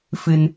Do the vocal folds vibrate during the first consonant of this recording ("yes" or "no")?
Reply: no